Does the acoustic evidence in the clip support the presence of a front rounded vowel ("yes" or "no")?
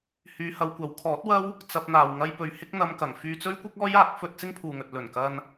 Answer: yes